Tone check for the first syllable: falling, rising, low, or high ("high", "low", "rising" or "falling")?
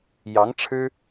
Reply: rising